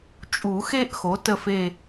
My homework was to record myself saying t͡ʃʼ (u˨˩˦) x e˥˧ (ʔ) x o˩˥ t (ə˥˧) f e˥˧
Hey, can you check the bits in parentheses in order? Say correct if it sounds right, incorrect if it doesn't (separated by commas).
correct, correct, correct